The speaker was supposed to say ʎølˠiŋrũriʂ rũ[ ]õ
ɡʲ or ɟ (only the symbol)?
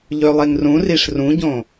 ɟ